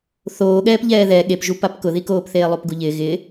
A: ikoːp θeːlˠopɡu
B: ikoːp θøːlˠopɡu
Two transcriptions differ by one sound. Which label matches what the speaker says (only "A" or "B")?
A